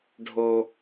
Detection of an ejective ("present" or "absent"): absent